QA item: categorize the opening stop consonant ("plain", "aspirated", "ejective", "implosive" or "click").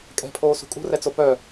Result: ejective